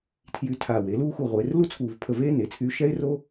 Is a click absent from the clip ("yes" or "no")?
yes